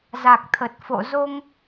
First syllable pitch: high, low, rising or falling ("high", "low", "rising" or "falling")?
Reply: low